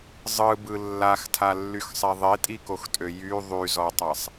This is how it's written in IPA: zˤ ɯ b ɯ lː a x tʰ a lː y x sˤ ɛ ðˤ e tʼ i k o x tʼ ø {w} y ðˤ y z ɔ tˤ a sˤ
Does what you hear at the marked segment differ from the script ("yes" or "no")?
yes